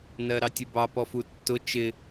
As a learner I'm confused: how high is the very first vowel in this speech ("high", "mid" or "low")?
mid